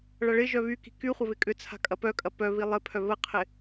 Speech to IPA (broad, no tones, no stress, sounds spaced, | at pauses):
ɭ ɐ ɭ ɪ ʒ œ β y k i̤ k y χʷ ɐ β ɪ kʼ ʏ t͡sʰ a̤ kʼ ɐ p œ kʼ ɐ p œ β i lˠ ɪ pʰ œ β ə qʰ ɪ